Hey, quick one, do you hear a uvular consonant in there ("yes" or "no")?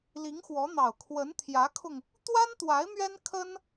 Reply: no